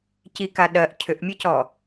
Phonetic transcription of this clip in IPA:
c i k a ɗ ɜ ʔ cʰ ʏ ʔ mʲ ɐ c ɔ

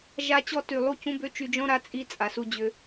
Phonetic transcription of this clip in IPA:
ʒ a˦ t͡ɕ ɔ˦ t y˨ lˠ u˦˨ c ũ˦ b ø˦ t͡ʃ y˧ d͡ʒ ɔ̃˦ ɾ a˦ t͡sʼ i˦ t͡sʼ a˨ s u˧ d͡ʑ ʏ˧

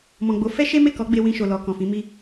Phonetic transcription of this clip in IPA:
m ɔ̃˨ ɡ͡b o˨˦ f ɛ˦ ʃ e˦ m e˦˨ k ɔ˨˦ ɡ͡b e˧ w ĩ˧ ʃ o˨ l ɔ˨ k ɔ̃˨ f ĩ˨˦ m i˦

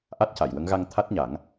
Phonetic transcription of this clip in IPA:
ʔ a˦˥ t̚ c a˨˩˨ j w ə˧˥ ŋ ɣ a˧ ŋ t̪ʰ a˦˥ t̚ ɲ a˨˩˦ ŋ

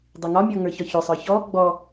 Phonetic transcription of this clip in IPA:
dˤ i ŋ ɒ mʲ ɔ ŋ ə˞ ç ɒ ç ɵ sˤ ə˞ ç ɔ ɡ͡b ɔ

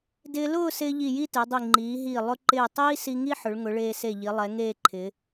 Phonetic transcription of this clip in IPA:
d ɪː˧ l ʊː˥˧ s ɪː˧ ʎ i˧˩ j i˥˧ t e˩˧ dˤ i˧˩ ŋ͡ǃ iː˩˧ ɦ iː˧˩ lˠ ʊ˧ ǃ ɪː˧˩ tˤ iː˥ s i˧ ŋ i˥ ħ ʊ˩˧ ɭ ŋ ʊ˩˧ ɭ eː˧ s e˧˩ ʎ i˩˧ lˠ ɛ˩˧ ŋ eː˥˧ ǃʰ ɪː˩˧

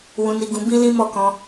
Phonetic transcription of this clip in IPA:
w ũ˧ n i˧ ɡ ũ˧ b ĩ˦ l ĩ˦ m ɔ˦˨ k ɔ̃˧

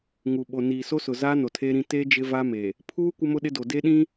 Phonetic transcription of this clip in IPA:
ŋ u˨ ɓ o˨ n iː˨ s o˦ s ʊ˨ z aː˦ n o˨ tʰ eː˦ ɾ ĩ˦ t e˦ d͡ʒ ɪ˦ v a˦ m e˨ | pʰ uː˦ kʷ ɪ˦ m ʊ˦ ɗ ɪ˦ d o˨ d e˦ ɗ ĩ˦

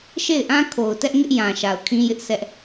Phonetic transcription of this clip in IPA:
ʃ e˦˨ ɪ̯ ʔ ã˦ kʰ o˨ ʊ̯ t ɛ˦ ʔ ŋ ɪ˦ ʔ j ã˨ ʃ a˨ ʊ̯ kʰ ĩ˦ j ɪ˦ ʔ s ɛ˦ ʔ

